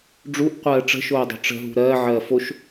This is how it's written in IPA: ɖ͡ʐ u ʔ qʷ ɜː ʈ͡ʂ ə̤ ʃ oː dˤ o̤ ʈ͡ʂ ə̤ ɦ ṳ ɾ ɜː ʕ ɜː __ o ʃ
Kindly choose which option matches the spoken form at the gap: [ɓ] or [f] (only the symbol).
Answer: f